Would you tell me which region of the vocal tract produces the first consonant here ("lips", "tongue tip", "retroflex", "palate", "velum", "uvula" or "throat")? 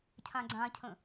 palate